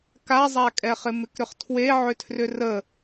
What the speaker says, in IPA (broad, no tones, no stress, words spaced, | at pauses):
kazˤakʼɛχɪ mɪkɾʏχtʰwe ʕʏtʰrʏrə